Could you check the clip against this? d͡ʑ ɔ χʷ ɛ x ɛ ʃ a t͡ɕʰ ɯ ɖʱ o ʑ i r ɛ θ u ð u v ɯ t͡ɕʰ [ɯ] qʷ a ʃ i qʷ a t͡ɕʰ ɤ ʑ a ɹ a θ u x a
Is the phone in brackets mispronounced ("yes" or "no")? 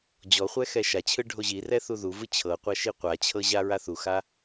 yes